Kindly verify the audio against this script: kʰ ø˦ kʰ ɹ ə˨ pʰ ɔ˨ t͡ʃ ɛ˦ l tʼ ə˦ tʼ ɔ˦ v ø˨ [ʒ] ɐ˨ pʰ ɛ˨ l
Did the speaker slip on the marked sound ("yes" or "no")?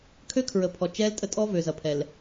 yes